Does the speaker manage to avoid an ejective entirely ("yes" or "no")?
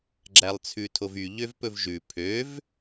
yes